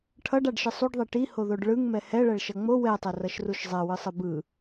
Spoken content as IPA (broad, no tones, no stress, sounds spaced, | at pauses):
ʈʰ ʌ ɖ a ɖ ʃ ɯ sˤ u ɖ ðˤ e ʈ i h o ð o ɖ ɭ ɯ ŋ m ɛ h ɛ ɭ ɛ ɭ ʃ ʌ ŋ͡m o w ɛ tˤ ɛ r ʌ ʃ r u ʃ zˤ ɛ w ɯ sˤ ɯ b ɯ